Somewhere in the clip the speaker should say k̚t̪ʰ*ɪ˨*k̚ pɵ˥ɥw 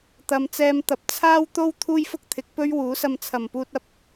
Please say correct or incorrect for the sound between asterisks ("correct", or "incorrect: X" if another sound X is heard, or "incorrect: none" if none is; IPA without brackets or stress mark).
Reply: incorrect: ɪ˨˥